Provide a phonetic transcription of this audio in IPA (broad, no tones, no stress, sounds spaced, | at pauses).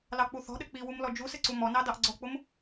l ɑ k͡p u θ ɔ̤ ɗ ɘ k͡p i w u m l ɔ d͡ʒ u s ɘ ǀ u m ɔ n ɑ d ɑ ʔ ɡ͡ǀ ɔ k͡p ʊ m